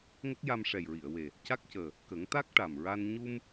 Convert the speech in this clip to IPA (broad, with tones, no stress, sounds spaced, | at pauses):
ŋ ə˦˥ k̚ j a˧ m ʂ ɛ˨˩ j ɹ i˨˩˨ ə̯ w e˨˩ | c a˦˥ k̚ c əː˨˩ | k ə˨˩˦ ŋ t̪ a˦˥ k̚ ʈ a˨˩ m ɹ a˧ n ɲ u˧ m